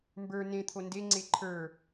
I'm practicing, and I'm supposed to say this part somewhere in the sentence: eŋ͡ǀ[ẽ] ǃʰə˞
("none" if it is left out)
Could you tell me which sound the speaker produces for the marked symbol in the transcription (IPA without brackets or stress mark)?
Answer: e